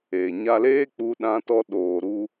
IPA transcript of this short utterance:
e˨ ɲ a˧ l eː˦ k͡p u˧ ɗ ã˧ t ɔ˧ ɗ oː˨ ɾ u˧

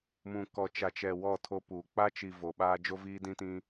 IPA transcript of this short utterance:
m ũ˨ k ɔ˨ t͡ʃ a˨ t͡ʃ ɛ˨ w ɔ˦˨ tʰ o˦ p uː˨ k͡p a˦ t͡ʃ i˨ v o˨ ɓ aː˦ d͡ʒ o˦ v iː˦ d ĩ˦ t ĩ˦

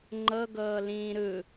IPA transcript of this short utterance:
ŋ͡ǃ ɤ ɡ ɤː l ĩː ɾ ɯ

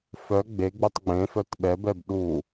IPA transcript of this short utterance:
f œ ɡ͡b e ɡ͡b u tˤ ɡ͡b ẽ f œ t ɓ ɛ b ɛ b ɗ u

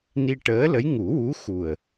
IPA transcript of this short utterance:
n i˧ ʈ əː˧˥ l ə˧˥ j ŋ u˨˩˦ w u˧˥ x u˨˩ ə̯

